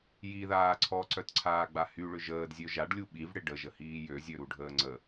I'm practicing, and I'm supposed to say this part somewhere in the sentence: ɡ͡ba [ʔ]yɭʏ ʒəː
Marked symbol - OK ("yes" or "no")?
no